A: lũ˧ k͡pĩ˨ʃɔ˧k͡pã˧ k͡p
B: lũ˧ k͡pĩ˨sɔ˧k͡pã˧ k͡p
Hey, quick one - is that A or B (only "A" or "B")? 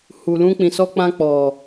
B